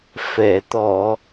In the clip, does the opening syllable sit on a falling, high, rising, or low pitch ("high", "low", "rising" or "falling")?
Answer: low